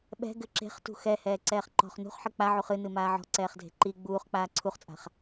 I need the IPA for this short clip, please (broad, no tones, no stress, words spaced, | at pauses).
ɓɛ̤ ɡɘǁe̤χ tṳxɛ hɛːǀɛːχǃɔ̤χ nṳχħɘ k͡paʕuχ ɨnɨ maːʕɔ̤ǀɛːχdʱe̤ ǃi ɡ͡buːχk͡paː ǀʰuχt͡sʼa̤χ